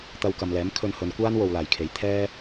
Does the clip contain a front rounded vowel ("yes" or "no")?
no